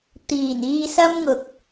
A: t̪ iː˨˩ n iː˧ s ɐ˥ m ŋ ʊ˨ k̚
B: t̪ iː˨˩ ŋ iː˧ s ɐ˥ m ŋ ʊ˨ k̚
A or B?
A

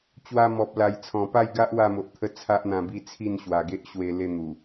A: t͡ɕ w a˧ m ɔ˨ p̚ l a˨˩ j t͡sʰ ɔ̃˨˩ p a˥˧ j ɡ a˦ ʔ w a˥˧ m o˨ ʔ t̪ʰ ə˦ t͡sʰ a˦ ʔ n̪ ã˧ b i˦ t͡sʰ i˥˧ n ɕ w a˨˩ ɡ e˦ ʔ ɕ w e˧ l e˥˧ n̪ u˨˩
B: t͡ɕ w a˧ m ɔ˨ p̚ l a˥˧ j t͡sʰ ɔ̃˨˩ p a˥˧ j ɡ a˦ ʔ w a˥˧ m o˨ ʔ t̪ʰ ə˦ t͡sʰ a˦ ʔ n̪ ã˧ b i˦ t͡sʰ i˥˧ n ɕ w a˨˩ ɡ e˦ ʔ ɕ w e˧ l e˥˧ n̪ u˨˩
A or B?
A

